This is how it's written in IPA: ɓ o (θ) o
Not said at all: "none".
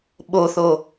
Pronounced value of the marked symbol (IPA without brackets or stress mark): θ